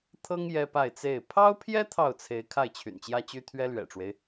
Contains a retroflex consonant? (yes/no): yes